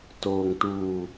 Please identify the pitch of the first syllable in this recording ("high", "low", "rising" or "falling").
low